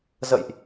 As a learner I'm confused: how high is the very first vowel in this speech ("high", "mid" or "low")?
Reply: mid